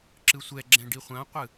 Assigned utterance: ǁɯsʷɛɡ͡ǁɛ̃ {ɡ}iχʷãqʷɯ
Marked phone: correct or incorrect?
incorrect: ɖ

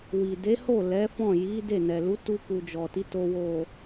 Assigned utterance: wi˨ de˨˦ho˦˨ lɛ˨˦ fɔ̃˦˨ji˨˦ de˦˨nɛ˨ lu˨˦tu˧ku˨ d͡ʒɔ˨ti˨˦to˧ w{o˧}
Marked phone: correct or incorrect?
incorrect: o˨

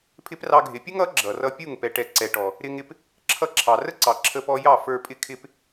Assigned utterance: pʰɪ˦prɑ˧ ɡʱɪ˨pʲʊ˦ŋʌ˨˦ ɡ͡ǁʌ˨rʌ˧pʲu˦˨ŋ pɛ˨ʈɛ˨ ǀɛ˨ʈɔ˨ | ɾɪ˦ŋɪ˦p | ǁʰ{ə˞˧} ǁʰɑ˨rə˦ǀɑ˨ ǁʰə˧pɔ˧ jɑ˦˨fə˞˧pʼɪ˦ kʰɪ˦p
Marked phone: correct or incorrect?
incorrect: ʌ˧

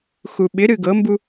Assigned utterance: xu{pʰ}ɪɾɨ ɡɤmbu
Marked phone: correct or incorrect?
incorrect: ɓ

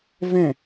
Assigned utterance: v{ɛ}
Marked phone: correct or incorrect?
incorrect: ɛ̃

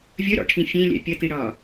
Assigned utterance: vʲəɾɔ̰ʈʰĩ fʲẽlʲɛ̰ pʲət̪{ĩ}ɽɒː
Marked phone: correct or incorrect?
incorrect: i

